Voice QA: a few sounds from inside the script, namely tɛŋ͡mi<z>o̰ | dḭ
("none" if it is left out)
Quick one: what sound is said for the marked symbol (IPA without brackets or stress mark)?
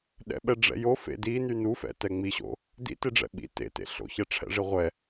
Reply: ɕ